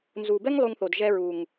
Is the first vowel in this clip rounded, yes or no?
yes